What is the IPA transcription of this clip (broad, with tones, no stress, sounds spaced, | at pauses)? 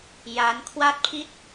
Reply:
j a˦˥ n kʰ w a˥˩ t̚ pʰ i˥˩ t̚